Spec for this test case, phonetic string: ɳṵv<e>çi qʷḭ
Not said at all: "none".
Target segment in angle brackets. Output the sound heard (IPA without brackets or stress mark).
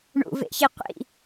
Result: ḛ